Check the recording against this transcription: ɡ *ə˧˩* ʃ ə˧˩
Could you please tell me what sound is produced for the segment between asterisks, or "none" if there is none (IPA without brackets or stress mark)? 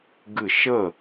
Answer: ɨ˧˩